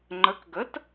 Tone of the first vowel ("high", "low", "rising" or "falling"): rising